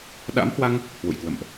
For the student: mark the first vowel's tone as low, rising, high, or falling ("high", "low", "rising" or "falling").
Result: rising